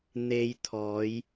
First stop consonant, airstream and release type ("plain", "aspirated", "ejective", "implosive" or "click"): aspirated